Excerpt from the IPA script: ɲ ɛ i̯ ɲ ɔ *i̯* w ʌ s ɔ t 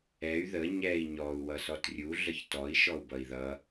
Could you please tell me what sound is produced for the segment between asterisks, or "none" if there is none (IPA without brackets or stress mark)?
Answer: u̯